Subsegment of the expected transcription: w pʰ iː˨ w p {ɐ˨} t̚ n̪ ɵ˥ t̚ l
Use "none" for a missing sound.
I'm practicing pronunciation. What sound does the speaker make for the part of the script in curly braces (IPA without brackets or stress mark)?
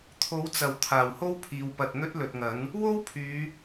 ɐ˨